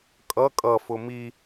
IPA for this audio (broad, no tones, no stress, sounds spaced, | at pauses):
kʼ ʌ kʼ ʌ f ʊ m i